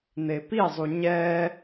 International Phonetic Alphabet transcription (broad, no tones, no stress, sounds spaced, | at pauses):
n̪ e p i zˤ u ɲ ɛ